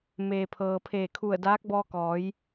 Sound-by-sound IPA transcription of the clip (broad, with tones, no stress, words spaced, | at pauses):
meː˩pʰɤː˩pʰeː˧˩ kʰu˧˩ə̯daː˧˥k̚ bɔː˧kɔː˩˧j